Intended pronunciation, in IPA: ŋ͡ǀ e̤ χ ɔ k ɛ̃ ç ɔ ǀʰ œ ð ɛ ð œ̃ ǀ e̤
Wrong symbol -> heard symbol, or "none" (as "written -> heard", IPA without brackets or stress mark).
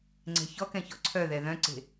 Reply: χ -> ç